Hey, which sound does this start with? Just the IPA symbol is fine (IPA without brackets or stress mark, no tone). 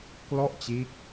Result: k